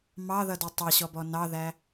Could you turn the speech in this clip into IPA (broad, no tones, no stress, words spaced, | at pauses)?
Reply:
mɑðʌdi tˤʌɕɔbɔ nɑðæ